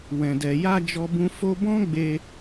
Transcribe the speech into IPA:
w ɛ̃˨ d ɛ˨ j a˧ d͡ʒ ɔ˦ b ũ˦ f o˦ b ɔ̃˦ ɡ͡b e˧

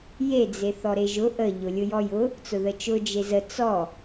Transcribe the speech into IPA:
j e d͡z e θ ɔ ɾ e ʒ ʊ ʔ ə ʎ ʊ lʲ ʊ j ɔ j ʊ | t͡s ʊ ð ə t͡ʃ ʊ d͡ʒ e z ə t͡s ɔ

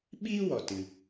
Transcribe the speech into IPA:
ɓ iː˦ w ɔ˨ t ɨ˧

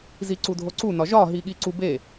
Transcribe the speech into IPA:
z i ǀ u dʱ o ǀ u n ɒ ʒ ɒ ɦ i ɠ i ǀ u b e

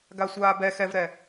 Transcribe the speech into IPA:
ɡ a sʷ aː b ɛ x ɛ v ɾ ɛ

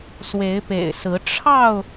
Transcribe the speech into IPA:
s w e˨˦ ɪ̯ p ḛ˨˩ ɪ̯ s ɹ̩˨˦ ʈ͡ʂʰ ɑ˥˨ ʊ̯

